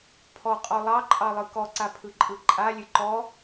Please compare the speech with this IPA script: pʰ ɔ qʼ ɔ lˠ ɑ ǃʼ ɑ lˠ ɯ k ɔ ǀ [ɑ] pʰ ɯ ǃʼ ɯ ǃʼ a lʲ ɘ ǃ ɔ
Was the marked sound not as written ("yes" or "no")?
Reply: yes